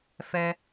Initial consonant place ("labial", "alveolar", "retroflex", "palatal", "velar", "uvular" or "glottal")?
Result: labial